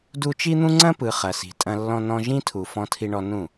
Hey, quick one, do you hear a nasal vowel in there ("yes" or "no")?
yes